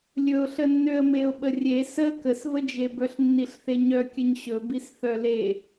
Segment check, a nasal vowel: absent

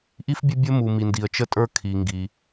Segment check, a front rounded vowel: absent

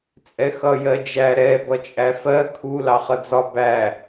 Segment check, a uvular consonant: present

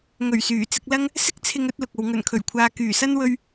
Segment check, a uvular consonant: absent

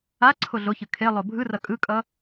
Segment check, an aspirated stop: present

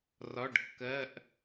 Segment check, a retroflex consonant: present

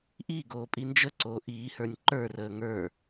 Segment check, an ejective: present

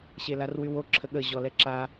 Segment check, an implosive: present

